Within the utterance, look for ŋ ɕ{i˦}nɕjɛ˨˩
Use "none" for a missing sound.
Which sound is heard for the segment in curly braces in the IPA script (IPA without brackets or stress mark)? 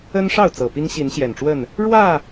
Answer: i˨˦